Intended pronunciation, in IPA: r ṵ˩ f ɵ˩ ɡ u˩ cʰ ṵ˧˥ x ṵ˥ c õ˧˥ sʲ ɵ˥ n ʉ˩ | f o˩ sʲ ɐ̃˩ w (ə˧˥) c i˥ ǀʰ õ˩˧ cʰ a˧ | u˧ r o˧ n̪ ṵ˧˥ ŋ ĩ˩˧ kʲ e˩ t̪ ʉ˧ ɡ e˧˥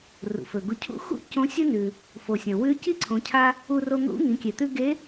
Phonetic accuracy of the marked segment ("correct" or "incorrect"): incorrect